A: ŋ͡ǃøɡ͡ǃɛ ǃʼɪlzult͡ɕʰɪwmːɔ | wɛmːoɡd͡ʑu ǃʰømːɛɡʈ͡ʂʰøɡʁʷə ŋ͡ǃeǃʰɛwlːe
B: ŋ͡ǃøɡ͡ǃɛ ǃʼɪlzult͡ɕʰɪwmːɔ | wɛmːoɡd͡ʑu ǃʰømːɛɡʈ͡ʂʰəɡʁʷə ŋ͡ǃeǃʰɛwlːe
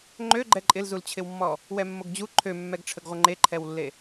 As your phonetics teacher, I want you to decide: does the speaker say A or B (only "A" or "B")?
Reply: B